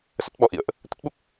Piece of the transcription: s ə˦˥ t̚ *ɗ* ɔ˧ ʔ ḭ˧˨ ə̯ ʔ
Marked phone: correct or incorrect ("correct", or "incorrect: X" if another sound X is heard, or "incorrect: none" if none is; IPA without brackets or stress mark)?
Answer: incorrect: ɓ